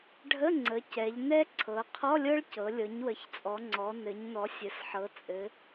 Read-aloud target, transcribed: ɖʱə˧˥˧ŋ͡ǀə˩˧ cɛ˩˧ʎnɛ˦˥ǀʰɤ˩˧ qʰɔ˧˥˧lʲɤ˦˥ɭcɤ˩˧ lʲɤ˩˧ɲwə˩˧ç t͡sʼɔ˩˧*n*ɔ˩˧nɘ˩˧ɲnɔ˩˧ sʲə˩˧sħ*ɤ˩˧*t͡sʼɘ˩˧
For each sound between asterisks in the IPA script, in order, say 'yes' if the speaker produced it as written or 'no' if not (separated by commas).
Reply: no, yes